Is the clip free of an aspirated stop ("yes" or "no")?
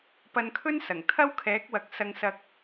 no